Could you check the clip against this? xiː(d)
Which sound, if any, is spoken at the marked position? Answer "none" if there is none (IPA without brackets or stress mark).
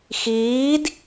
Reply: d